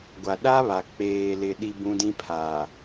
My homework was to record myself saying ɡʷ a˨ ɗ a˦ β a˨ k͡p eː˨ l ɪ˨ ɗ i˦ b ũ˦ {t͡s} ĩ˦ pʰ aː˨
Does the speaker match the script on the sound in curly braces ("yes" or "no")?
no